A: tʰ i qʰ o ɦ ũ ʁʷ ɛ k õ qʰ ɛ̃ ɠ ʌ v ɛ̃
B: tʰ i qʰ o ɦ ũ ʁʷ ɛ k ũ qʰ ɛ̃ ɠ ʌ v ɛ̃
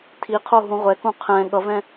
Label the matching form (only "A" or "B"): B